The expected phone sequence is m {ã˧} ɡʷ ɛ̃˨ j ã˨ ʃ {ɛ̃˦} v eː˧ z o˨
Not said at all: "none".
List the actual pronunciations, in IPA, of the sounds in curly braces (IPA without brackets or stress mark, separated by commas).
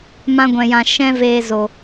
ã˧, ɛ̃˧